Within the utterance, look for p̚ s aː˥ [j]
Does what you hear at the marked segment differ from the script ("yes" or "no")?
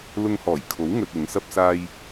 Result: no